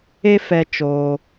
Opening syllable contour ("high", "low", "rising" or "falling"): high